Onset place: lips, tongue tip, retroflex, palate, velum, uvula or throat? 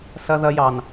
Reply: tongue tip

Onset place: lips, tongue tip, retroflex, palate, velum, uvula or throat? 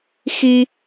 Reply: velum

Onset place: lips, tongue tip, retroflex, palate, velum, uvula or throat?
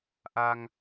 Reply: throat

